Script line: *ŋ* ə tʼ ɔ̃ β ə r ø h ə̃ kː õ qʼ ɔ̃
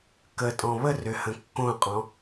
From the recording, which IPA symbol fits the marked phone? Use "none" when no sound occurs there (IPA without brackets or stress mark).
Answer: k